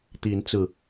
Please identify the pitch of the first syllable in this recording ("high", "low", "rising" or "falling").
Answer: rising